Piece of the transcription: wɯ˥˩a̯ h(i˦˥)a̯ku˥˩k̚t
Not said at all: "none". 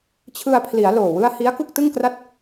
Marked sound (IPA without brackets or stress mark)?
i˦˥